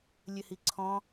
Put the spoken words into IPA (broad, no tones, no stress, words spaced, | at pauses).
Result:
lʲɘhiǀʰɔ̃